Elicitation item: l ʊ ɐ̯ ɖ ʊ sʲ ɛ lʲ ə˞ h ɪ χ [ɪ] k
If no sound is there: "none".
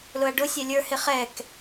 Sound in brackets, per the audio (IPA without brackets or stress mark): ɛ